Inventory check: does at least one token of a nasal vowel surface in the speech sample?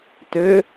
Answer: no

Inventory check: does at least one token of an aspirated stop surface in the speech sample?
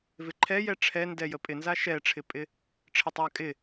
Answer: yes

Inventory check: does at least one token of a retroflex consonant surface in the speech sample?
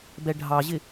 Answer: yes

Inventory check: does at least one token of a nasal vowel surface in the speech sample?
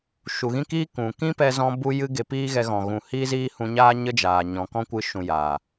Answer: yes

